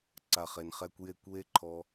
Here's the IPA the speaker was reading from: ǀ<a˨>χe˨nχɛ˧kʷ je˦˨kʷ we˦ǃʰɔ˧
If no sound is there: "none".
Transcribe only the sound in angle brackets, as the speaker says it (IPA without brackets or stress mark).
a˨